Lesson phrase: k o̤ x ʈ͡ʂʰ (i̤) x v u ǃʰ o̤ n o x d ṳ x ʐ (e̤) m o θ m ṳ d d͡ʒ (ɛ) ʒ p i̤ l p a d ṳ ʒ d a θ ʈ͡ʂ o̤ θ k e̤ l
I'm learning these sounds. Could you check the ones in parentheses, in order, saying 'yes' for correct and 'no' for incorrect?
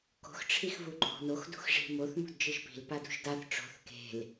no, no, no

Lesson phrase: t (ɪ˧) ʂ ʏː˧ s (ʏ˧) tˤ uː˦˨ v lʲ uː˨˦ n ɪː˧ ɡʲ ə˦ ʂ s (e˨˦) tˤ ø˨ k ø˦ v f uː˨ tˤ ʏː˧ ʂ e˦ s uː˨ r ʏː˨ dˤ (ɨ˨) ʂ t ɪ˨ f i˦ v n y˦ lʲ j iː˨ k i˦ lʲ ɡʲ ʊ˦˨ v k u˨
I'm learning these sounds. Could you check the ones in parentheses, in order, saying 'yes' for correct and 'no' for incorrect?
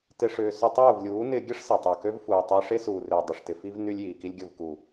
no, yes, no, no

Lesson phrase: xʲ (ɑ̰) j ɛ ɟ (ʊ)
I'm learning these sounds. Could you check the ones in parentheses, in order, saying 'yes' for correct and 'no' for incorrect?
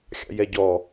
yes, no

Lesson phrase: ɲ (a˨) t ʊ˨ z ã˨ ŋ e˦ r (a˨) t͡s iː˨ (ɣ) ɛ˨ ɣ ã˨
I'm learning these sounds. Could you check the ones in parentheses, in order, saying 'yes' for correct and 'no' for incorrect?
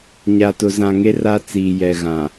yes, no, no

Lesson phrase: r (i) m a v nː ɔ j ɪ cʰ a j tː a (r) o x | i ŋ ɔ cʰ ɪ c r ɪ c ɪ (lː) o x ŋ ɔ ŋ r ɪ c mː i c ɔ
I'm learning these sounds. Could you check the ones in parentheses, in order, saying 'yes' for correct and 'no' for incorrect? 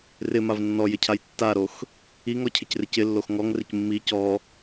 no, no, yes

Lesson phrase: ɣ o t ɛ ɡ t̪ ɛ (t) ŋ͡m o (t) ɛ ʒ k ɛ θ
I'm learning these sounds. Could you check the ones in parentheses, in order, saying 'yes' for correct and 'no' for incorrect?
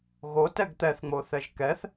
no, no

